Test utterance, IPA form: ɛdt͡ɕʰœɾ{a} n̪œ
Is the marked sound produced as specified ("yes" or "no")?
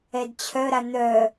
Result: yes